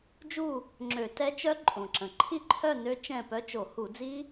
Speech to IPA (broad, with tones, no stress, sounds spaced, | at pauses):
d͡ʒ u˥˨ | ŋ͡ǁ ø˧˩˧ t ɛ˦˥ t͡ʃ œ˦˥ ǃʼ õ˩ ǁ ə̃˩ ǃʰ i˥˨ ǃʰ œ˥˨ n ø˦˥ t͡ʃ ɛ̃˥˨ p œ˦˥ t͡ʃ o˧˩˧ h u˧˩˧ d͡z i˦˥